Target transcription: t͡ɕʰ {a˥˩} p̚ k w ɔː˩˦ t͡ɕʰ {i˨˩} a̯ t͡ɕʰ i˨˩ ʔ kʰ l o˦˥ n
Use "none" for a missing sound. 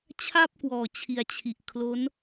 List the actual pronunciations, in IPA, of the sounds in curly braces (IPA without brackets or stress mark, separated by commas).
a˥˩, i˩˦